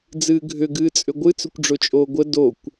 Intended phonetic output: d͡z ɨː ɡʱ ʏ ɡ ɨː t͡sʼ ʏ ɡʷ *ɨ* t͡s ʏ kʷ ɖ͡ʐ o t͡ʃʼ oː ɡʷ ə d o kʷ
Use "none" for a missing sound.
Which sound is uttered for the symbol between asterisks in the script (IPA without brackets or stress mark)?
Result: ɨ